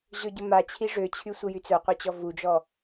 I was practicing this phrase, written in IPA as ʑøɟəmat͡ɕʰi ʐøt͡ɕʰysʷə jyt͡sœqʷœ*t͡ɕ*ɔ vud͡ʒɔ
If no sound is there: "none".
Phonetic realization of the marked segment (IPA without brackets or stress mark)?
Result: t͡ɕ